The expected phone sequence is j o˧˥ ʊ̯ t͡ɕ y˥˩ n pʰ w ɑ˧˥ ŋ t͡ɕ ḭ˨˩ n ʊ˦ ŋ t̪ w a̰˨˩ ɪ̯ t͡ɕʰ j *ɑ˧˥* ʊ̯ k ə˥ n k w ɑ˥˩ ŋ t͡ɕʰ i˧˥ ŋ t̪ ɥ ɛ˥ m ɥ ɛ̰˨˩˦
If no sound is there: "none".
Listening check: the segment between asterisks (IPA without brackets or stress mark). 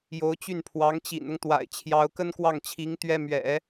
ɑ˧˥